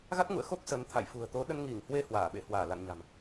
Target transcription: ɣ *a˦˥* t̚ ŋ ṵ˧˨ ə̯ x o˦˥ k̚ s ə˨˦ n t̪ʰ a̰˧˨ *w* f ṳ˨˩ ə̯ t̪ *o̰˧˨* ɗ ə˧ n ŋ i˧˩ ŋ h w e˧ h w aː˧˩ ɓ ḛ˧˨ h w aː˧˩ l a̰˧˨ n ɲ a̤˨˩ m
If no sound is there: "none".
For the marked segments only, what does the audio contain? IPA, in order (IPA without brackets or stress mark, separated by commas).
a˦˥, j, o˨˦